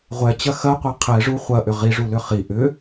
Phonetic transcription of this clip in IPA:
ʁʷ ɛ t͡ɕ ɐ x ɐ qʷ ɛ qʰ ɛ ʐ u χʷ ɐ ʔ ʏ ʁ i ʐ u l ʏ χ i ʔ ʏ

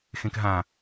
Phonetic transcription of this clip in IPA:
x ẽ k ɦ ã

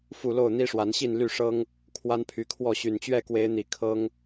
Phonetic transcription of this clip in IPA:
f u˥˨ l o˥˨ ʊ̯ n̪ i˦ ʂ w a˨˦ n ɕ i˥˨ n l y˥˨ ʂ ɤ˦ ŋ | kʰ w a˦ n pʰ y˨˦ kʰ w ɔ˥˨ ɕ y˨˩ n t͡ɕ ɥ ɛ˥˨ k w e˨˦ ɪ̯ n̪ i˨˩ kʰ ɤ˦ ŋ

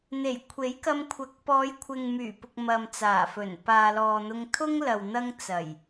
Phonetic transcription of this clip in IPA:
n̪ e˨˩ j kʷʰ e˨˥ j k ɐ˧ m kʷʰ ɐ˨˥ k̚ p ɔː˨˧ j kʷʰ ɪ˨ ŋ m yː˨˩ p ʊ˨ k̚ m ɐ˨ m t͡s aː˨˩ f ɵ˨˩ n p aː˨ l ɔː˨ n̪ ʊ˧ ŋ t̪ʰ ʊ˥ ŋ l ɐ˨ w n̪ ɐ˥ ŋ t͡s ɐ˨˩ j

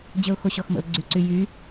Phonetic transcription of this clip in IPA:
d͡ʑ ə ʊ̯ x o ɕ ɔ x m ə̰ ʊ̯ ɡ͡ǀ y ǀ y j y

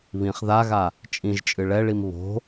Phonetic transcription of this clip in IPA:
β ĩ χ ð a ɣ a | t͡ʃʼ ĩ ʒ t͡ʃʼ ɨ ɭ ɛ ɭ i m β o̤

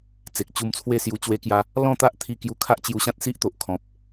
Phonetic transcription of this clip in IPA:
t͡s e˨ k̚ t͡ɕ u˧ m t͡sʰ w e˥˧ s j u˧ t͡ɕ w e˧ k j a˧ | l ɔ̃˥˧ t̪ a˦ ʔ t̪ʰ i˧ k j u˧ kʰ a˦ ʔ t͡ɕ j u˧ ɕ ã˦ t̚ s i˦ ʔ t̪ o˨ ʔ kʰ ɔ̃˨ p̚

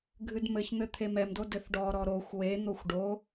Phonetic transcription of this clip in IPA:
ɡʱ ɨ d m ɘ ç n̪ ɘ t̪ʰ e m ɛ m d o d ɘ θ ɖ ɔ ɾ ɔ ɾ o xʷ w e n̪ o xʷ ɖ o

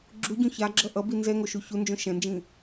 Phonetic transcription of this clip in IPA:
ɡ͡ǁ u ɟ ũ ç a ɡ͡ǁ ʌ ʔ ʌ b i n z ɛ ŋ o ʃ u ç u n d͡ʒ õ ʃ ɛ̃ n d͡ʒ ĩ

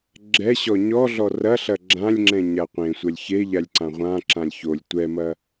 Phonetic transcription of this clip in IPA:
ɡ͡ǁ ɛ ɕ ɔ ɲ ɔ ɮ ɔ r ɐ ɬ ɐ ɡ͡ǁ ã lʲ ŋ͡ǁ ɛ̃ ɲ a qʷ ẽ sʷ ɐ lʲ ç e ʎ a lʲ ǀ ã ʁʷ ã ǁ ã lʲ ç o lʲ tʷ ɛ m ɐ

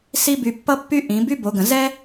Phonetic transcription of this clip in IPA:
s i˥ b y˧ pː ʌ˥ pː y˥ ʔ ĩ˩˧ b y˥ b o˩˧ ɡ ə̃˩ z ɛ˥

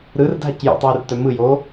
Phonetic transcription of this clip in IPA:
ɾ ɯ r dʱ a c j o̰ tˤ uː r t œ m ɯ j oː

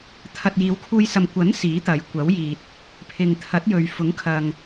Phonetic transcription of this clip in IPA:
t̪ʰ ɐ˨ t̚ j iː˨˧ w kʰ uː˧ j s ɐ˨ m kʷ ɐ˨˥ n s iː˨˥ t̪ ɐ˨˧ j kʷ ɐ˨˥ w j iː˨ t̚ | pʰ ɪ˨ ŋ t̪ʰ ɐ˨˥ t̚ j ɵ˨ ɥ f ʊ˨˥ ŋ kʰ ɐ˨ ŋ

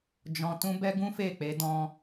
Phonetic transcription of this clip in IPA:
d͡ʒ ɔ̃˧ t ũ˦ b ɛ˦ ɡ ũ˦ f e˦˨ k͡p e˨˦ d ɔ̃˧

